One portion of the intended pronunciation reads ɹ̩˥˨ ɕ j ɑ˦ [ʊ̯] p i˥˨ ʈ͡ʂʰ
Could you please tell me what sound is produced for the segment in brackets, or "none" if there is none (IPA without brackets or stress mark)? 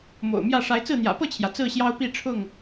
ʊ̯